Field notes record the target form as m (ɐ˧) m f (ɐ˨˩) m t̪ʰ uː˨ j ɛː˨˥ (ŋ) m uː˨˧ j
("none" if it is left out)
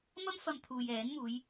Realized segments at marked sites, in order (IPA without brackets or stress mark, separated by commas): ɐ˥, ɐ˧, n